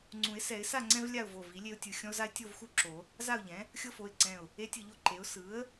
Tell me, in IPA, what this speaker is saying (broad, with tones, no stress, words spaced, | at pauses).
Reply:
ŋ͡ǀũ˨˩˦ɪ̯sɛ˨˩˦ɪ̯sa˥˨ŋ͡ǀɛ̃˦v lʲa˥˨ʊ̯vo˧˩ vi˩˥lʲe˦ʊ̯tʲɯ˧˩ xʲɔ̃˦ʊ̯za˦ɪ̯ tʲo˥˨vxu˥˨ǁo˨˩˦ | za˥˨ʊ̯ʎɛ̃˩˥ | xʲɤ˦fo˩˧˩ɪ̯ǀɛ̃˧˩ʊ̯ | e˦tʲɯ˧˩ʎo˥˨ǃe˩˥ʊ̯ sɯ˩˥ə̯